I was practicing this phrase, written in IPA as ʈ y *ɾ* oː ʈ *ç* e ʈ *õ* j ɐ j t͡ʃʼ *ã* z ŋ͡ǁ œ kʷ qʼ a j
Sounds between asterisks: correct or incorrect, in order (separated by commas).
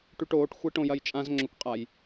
incorrect, incorrect, correct, correct